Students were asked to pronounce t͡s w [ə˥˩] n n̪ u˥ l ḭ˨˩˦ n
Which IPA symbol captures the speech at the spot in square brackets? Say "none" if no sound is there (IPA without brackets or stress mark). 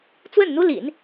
ə˥˩